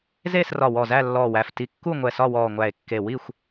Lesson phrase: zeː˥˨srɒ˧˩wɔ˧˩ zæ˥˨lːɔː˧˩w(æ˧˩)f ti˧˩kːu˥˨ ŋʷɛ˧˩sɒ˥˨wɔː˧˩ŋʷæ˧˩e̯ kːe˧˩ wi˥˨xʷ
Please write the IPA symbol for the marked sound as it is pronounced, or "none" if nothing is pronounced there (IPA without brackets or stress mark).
æ˧˩